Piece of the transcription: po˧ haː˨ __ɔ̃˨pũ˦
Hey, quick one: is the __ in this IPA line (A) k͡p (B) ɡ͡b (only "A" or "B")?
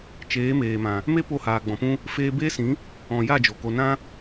B